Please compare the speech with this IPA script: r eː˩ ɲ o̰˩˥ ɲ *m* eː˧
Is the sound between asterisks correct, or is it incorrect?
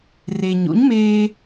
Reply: correct